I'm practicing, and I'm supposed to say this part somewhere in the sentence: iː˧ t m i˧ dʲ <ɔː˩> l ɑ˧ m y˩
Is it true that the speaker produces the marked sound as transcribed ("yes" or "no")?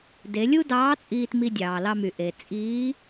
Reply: no